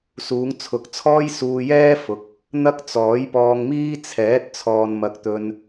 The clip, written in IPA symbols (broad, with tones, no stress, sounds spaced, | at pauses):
s uː˨˧ ŋ t͡sʰ ʊ˨ k̚ t͡sʰ ɔː˥ j s uː˧ j ɛː˥ f ʊ˨˥ k̚ | n̪ ɐ˥ k̚ t͡s ɔː˨˥ j p ɔː˧ ŋ m iː˥ t͡sʰ ɛː˨˥ t̚ t͡sʰ ɔː˨ n m ɐ˨˥ k̚ t̪ ɵ˧ n